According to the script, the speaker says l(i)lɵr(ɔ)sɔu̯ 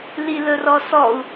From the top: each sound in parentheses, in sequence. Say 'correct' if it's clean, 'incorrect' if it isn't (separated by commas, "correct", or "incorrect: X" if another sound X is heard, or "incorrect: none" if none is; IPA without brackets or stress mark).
correct, correct